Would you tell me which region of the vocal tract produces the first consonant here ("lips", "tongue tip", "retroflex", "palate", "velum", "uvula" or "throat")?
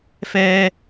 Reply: lips